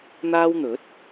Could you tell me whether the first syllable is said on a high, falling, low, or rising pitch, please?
high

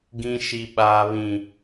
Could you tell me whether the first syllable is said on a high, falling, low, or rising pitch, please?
high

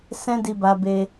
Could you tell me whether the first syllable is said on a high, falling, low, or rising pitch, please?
high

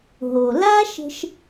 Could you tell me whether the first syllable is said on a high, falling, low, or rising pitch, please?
low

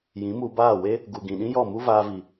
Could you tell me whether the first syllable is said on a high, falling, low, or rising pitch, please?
rising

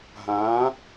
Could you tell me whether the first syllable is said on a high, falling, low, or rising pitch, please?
rising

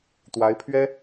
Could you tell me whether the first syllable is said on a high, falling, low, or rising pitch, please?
rising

